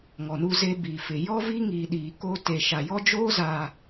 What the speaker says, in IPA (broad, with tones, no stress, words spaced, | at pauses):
ŋɔ˨nu˦ze˦ bi˨fɪ˨ jɔ˦vi˦ŋiː˨ ɗiː˨ko˦ te˨ʃa˨jɔ˦d͡ʒoː˦ zaː˨